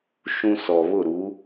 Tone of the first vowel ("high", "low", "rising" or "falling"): high